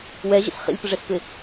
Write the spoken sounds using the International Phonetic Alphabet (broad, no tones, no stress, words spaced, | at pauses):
wɛʑə̰s χḭlʲpəʐɛspɪ